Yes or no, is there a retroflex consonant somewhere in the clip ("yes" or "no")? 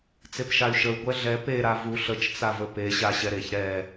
no